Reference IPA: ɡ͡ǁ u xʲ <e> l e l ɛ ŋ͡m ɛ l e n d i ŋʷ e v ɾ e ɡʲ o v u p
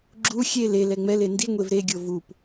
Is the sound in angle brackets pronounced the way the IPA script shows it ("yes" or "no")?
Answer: yes